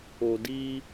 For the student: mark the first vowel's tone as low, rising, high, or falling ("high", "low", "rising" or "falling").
low